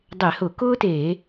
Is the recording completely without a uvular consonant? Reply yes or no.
yes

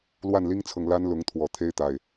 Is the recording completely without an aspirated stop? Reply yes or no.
no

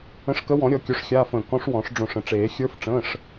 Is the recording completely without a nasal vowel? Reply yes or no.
no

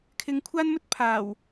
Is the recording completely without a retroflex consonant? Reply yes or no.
yes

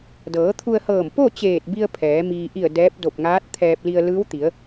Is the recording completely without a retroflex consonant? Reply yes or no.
yes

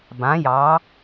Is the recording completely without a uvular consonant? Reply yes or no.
yes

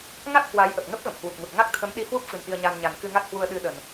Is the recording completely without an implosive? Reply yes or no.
no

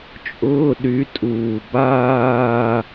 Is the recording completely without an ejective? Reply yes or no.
no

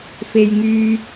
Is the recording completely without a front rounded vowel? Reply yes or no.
no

